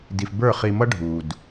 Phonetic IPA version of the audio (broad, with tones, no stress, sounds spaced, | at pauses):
d i˨ f b ə˞˦˨ χ i˨ m ʌ˦ ɖʱ u˨ d